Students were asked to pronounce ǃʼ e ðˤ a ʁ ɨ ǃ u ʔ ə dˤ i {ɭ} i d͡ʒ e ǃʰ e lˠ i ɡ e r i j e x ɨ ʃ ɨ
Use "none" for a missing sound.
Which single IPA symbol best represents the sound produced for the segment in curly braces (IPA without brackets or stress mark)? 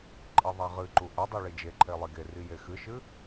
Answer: ɭ